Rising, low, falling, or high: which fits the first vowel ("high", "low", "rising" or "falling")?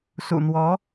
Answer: low